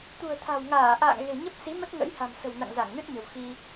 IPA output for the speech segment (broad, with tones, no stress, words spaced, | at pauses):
t̪ṳ˨˩ə̯ t̪ʰa̤˨˩wŋaː˧˩ ʔa̰ː˧˨ŋ ɣe̤˨˩ɲə˦˥p̚si˨˦mə˦˥t̚ ŋə̰˧˥jha̤˨˩msə̤˨˩w na̰˧˨ŋza˧˩ŋnɨ˦˥t̚ɲə̤˨˩w xi˧